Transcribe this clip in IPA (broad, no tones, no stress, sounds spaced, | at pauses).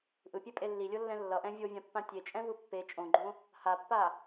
ʔ ɯ pʲ ɛ pʼ e lː i lʲ o lː ɛ̃ lː ʌ ʔ ɛ̃ vʲ o vʲ ã pː ã tʲ e t͡ʃʼ ɛ̃ v ɯ pː e t͡ʃʼ õ ɡ͡ǃ õ | h a pː a